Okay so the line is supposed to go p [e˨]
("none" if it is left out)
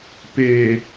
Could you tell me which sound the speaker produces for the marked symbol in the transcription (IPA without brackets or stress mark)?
e˨